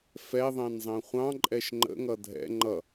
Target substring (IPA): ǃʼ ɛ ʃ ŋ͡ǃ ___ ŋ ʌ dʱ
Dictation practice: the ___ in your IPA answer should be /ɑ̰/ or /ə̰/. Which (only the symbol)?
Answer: ə̰